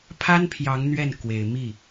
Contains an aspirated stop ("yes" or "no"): yes